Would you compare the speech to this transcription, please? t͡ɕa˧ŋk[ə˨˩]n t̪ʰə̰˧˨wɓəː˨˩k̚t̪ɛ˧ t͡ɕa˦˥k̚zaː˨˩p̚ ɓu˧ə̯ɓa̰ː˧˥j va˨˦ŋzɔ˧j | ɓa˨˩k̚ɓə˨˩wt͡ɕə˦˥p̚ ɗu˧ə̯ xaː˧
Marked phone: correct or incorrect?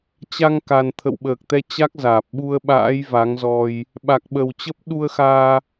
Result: incorrect